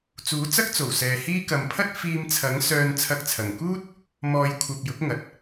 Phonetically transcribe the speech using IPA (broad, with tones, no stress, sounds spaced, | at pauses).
t͡s uː˨˥ t͡s ɐ˥ k̚ t͡s o˨˩ w s ɛː˨ h iː˥ k ɐ˨ m pʰ ɐ˥ t̚ f iː˧ m t͡sʰ ɐ˨˥ ŋ s œː˨ n t͡sʰ ɐ˧ k̚ t͡sʰ ɐ˨˩ ŋ k uː˥ t̚ | m ɔː˨˧ j kʷʰ ɐ˨ p̚ j ʊ˨˥ k̚ ŋ ɐ˨ t̚